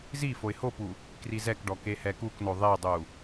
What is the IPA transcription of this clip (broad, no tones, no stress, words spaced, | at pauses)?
zi foɪ̯hopu | krizɛkɖɔ kehɛkukno ðˤedˤu